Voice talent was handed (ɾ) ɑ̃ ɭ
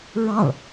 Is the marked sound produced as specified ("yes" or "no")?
no